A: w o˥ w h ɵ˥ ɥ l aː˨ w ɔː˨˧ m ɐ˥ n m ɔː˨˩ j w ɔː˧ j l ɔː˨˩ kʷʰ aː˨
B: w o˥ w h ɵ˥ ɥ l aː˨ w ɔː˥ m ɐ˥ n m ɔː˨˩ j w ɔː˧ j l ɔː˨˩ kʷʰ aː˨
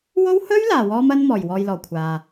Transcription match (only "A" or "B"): B